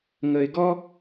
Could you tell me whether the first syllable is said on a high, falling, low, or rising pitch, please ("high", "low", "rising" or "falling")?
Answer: high